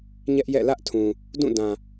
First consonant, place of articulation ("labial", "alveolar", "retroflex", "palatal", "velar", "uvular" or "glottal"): palatal